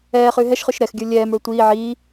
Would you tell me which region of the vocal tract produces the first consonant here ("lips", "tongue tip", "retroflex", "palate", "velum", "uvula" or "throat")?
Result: uvula